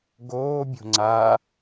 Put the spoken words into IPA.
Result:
ɡ oː bʲ o̤ ŋ͡ǀ a

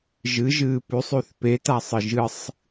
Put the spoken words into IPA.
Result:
ʒ ɨ ʒ ɨː p ʉ sˤ ʉ θ p e t a sˤ ɨ ʒ ɨ sˤ

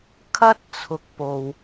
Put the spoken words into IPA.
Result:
kʰ ɐ˥ t̚ t͡sʰ ʊ˨ k̚ p o˨ w

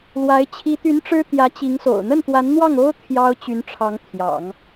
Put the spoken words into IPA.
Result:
l w a˧˥ ɪ̯ t͡ɕʰ i˧˥ t̪ y˧˥ n ʈ͡ʂ ɻ̩˥ t̪ j ä˧˥ t͡ɕ i˧˥ ŋ s o̰˨˩ ʊ̯ n̪ ə˥˩ n t̪ w a˧˥ n n̪ w ɑ˥˩ ŋ o˥ ʊ̯ t̪ʰ j ɑ˥ ʊ̯ t͡ɕ y˧˥ n ʈ͡ʂʰ ɑ˧˥ ŋ t̪ʰ j ɑ̰˨˩˦ ŋ

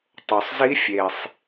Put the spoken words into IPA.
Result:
tˤ o˩ sˤ z i˧˥ fʲ e˩ sˤ

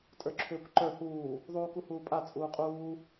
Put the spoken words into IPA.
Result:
tʼ ə˞ ǁʰ ʏː kʷ ǃ ə˞ h uː | ðˤ uː k u h uː pʼ a t͡sʼ uː qʼ uː

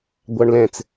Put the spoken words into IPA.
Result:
ɡʷ ɑ ɳ l ɛ̃ t͡s

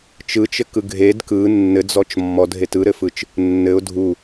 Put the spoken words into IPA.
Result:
t͡ʃ ɯ t͡ʃ ɘ k ɯ ɡʱ e d k ɯ nː ɘ d͡z ɔ t͡ʃ mː ɔ dʱ e t ɯ ɾ ɘ f ɯ t͡ʃ | nː ɘ ʊ̯ dʱ u

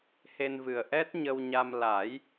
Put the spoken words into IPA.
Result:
h e˧ n v ɨ˨˩ ə̯ ʔ ɛ˦˥ t̚ ɲ ə˧ w ɲ a˧ m l a˨˩˦ j

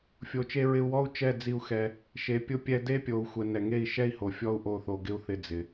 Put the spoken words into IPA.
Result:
fʲ o˨ t͡ʃ e˧ ɹ ɪ˧ u̯ w ɔ˦ u̯ t͡ʃ ɛ˦˨ d͡z i˧ u̯ x ɛ˧ | ʃ e˨ pʲ ʊ˦ pʲ ɛ˧ d e˦ pʲ o˨ u̯ xʷ ɛ˧ n ɛ˨ ŋ e˦˨ i̯ ʃ ɛ˦ i̯ h o˨ fʲ ɔ˦ u̯ ʔ o˦˨ θ o˧ ɡ ɪ˦ u̯ θ ɪ˧ d͡z ɪ˨

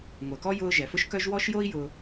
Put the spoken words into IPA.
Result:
ŋʷ œ˩ k ɔ˦ j ʊː˦ ʒ ɛ˩ f ʊ˥ ʃ k œ˥ ʒ w ɔ˦ ʃ j o˦ i̯ j ʊ˨

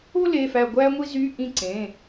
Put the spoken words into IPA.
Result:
o˥ l e˩˧˩ f æ˧˩ ɡʷ æ˥ ŋʷ i˥ z y˧˥˧ ʔ ĩ˥˩ ǀ ẽ˩˧˩

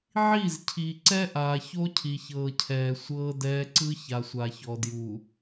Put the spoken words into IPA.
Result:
ʕ i˦˨ z cʰ i˨ ǀ ɛ˦ ʔ aː˨ ç o˦ cʰ i˨ ç ɤː˨ cʰ ɛː˨ sʷ ɤː˦ d ɛː˦ ǀ ɯ˦ ç a˨ sʷ a˨ ç ɔ˨ d j u˨

